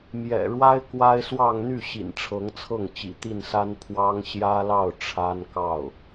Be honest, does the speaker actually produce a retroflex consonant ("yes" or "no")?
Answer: yes